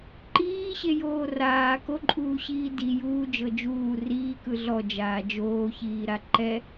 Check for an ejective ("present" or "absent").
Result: present